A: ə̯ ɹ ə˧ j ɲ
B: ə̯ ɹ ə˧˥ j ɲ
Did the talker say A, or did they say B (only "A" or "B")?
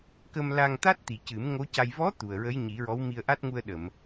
B